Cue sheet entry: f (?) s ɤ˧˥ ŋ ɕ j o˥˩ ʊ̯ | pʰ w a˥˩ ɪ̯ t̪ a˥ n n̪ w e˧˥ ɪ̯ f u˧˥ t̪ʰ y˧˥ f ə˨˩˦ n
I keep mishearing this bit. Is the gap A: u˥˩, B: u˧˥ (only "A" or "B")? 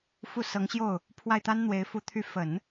A